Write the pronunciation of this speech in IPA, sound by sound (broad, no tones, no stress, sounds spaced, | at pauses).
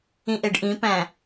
ĩ ʔ e ɖ ʔ ĩ p æ̃